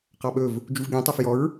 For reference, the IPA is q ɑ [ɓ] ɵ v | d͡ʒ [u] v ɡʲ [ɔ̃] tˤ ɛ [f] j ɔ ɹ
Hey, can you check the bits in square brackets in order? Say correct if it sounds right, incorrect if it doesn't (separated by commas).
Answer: correct, correct, correct, correct